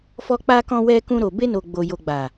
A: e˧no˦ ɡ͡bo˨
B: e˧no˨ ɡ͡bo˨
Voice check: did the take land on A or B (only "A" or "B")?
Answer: B